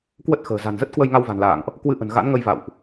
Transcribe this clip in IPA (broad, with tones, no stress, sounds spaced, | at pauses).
k w ə˦˥ t̚ x ə̤ː˨˩ z a̤˨˩ n z ə˦˥ t̚ k w ə˧ j ŋ a˧ w v a̤˨˩ n l a̰ː˧˨ ŋ ʔ | k w ɨ˧ ʔ ə̤˨˩ n ɣ a̰˧˥ n ŋ ə˧ j v a̰˧˨ w ʔ